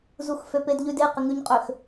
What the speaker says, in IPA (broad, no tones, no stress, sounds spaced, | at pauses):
z u x f ø p e d ʎ ʉ d e q ɪ ŋ ʉ ɲ qʼ ø x